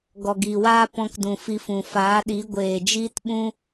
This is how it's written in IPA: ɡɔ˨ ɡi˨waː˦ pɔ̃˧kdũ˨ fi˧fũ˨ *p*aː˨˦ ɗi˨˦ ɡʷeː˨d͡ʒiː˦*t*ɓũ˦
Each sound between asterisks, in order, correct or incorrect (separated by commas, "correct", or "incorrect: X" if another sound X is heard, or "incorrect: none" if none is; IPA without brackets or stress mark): incorrect: f, correct